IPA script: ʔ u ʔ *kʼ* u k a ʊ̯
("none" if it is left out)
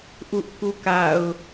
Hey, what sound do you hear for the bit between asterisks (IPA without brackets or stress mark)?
k